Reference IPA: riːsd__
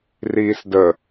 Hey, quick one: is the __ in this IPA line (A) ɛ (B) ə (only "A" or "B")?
B